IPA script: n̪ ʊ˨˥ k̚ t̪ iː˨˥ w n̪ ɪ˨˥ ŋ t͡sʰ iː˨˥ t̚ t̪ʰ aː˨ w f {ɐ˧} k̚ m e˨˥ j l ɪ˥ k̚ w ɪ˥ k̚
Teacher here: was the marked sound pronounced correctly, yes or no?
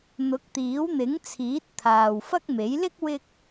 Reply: no